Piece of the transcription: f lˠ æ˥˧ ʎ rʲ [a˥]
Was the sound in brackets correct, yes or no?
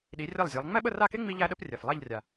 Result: no